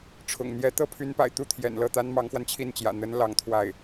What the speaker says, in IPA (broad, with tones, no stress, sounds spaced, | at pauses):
ʈ͡ʂʰ ʊ̰˨˩ ŋ n̪ j ɛ˧˥ t̪ ɤ˥ pʰ y˧˥ n p a̰˨˩ ɪ̯ t̪ u˥˩ t̪ʰ j ɛ̰˨˩ n l ɤ˥˩ t̪ a˥ n m ɑ˧˥ ŋ x w a˧ n t͡ɕʰ i˥˩ n t͡ɕ j ä̰˨˩ n̪ ə˧˥ n l ɑ˧˥ ŋ t̪ʰ w a˥˩ ɪ̯